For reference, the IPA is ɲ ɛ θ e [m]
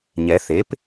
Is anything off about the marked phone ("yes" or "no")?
yes